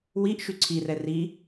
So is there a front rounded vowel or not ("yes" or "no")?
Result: yes